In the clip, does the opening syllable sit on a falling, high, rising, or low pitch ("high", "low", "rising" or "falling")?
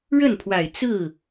falling